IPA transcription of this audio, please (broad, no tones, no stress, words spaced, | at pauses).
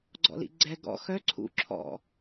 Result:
ɡ͡ǀɔ̰lḭɡ͡ǀɛ ɡɔ̰ xœ ǀʰṵ ǁʰɔ̰